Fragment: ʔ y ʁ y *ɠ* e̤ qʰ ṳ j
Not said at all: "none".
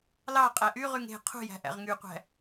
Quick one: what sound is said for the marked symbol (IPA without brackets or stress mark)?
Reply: ŋ